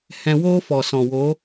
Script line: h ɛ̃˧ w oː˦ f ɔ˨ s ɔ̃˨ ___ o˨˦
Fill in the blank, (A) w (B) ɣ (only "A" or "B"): A